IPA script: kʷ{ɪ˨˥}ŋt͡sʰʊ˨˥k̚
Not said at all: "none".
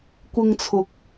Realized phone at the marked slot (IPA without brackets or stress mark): ɪ˧